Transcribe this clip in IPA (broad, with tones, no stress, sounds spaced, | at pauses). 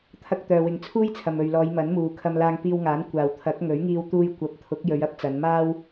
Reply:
t̪ʰ ɐ˧ k̚ t̪ œː˨ w ɪ˨˧ ŋ t͡sʰ uː˥ j t͡sʰ ɐ˨ m ɵ˨ ɥ l ɔː˨˧ j m ɐ˨˥ n m uː˨ kʰ ɐ˧ m l aː˧ ŋ p iː˧ w ŋ aː˨˥ n kʷ aː˨ w t̪ʰ ɐ˨˥ k̚ ŋ ɵ˨˥ ɥ ŋ iː˧ w t̪ uː˧ j kʷ ɐ˨˥ p̚ t̪ʰ ʊ˨˥ k̚ j ɵ˨˧ ɥ ɐ˨˥ p̚ t͡s ɐ˨˧ n m aː˥ w